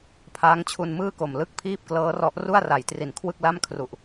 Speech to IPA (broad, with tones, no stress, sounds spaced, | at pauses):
pʰ aː˦˥ ŋ t͡ɕʰ u˧ n m ɯː˥˩ k o˨˩ m l ɯ˥˩ k̚ pʰ iː˥˩ p̚ k l ɤː˦˥ r ɔ˦˥ ʔ r u˥˩ a̯ r a˩˦ j t r i˨˩ n kʰ w ɯ˥˩ k̚ l a˥˩ m kʰ r u˨˩ ʔ